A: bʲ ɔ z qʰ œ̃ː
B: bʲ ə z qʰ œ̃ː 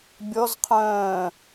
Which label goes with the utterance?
A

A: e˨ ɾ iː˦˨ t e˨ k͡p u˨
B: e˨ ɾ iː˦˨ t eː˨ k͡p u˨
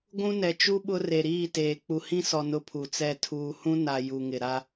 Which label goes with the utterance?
B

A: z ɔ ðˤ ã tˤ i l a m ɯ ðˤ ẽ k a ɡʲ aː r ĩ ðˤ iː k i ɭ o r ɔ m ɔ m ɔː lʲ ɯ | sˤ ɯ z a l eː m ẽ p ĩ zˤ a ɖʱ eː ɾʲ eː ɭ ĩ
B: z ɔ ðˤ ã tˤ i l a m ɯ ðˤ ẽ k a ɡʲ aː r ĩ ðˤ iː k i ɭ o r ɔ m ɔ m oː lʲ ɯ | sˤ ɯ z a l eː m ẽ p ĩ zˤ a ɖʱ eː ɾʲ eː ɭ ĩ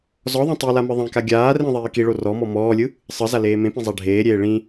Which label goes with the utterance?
A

